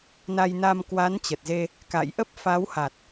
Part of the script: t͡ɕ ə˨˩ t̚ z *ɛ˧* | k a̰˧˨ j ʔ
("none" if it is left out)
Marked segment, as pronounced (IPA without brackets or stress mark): e˧